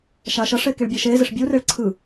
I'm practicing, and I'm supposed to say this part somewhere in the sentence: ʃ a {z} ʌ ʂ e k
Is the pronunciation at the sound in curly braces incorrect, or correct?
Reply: incorrect